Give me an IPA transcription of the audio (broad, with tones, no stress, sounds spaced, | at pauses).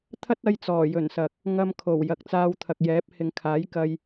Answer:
t̪ʰ ɐ˥ t̚ ɐ˧ j t͡s ɔː˨˩ j ɵ˨˩ n s ɐ˨ k̚ | ŋ ɐ˧ m kʰ o˨˩ w j ɐ˨ k̚ t͡s aː˧ w t̪ʰ ɐ˨ k̚ j ɛː˨˥ p̚ h ɪ˨ ŋ kʰ aː˨˥ j k ɐ˧ j